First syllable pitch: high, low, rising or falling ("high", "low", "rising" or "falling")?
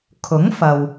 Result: rising